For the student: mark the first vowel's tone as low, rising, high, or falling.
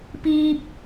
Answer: high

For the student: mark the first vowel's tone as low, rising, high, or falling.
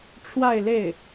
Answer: falling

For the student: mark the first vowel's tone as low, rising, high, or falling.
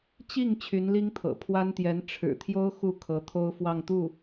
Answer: falling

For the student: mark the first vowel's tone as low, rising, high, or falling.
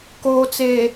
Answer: low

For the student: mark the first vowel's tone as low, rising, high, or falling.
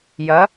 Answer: rising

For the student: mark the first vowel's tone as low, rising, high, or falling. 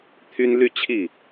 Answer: high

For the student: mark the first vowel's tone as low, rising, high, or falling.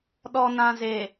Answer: low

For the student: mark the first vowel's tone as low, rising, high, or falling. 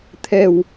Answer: low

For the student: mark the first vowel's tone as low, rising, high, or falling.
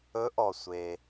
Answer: rising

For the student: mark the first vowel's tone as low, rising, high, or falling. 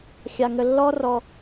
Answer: low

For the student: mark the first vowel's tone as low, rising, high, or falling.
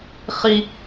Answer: high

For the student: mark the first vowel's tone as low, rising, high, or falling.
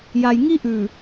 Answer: low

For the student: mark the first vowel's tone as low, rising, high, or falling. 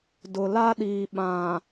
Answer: low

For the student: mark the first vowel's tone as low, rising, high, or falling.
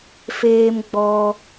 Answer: high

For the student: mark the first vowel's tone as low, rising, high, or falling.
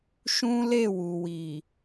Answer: high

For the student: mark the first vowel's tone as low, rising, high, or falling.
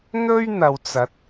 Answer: high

